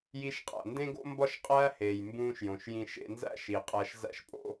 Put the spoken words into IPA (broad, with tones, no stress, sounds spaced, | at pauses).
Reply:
j i˧ ʃ qʼ æ̰˩ n d ẽ˥ ɡ o̰˥ m b ɒ˥ ʃ qʼ æː˥ h eː˩ j m b ũː˧ ʃ j õ˩ ʃ j ĩ˧ ʃ ḛ˧ n z æ̰˥ ʃ i˩ qʼ æ˧ ʃ z æ̰˥ ʃ pʼ o̰˥